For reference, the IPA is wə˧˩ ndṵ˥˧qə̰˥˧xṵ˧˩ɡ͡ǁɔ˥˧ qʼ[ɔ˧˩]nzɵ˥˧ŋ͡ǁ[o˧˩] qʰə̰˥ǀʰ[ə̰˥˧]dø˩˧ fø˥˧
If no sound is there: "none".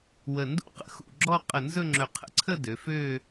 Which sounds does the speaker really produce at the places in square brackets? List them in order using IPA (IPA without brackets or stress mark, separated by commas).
ə˧˩, ɵ˧˩, ə˥˧